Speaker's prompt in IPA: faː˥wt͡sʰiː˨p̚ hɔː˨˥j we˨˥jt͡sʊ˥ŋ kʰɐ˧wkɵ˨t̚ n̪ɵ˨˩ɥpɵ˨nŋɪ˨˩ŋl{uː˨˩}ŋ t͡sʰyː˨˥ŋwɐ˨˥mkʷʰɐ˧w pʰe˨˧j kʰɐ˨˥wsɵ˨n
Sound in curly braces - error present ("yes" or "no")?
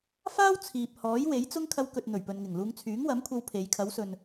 yes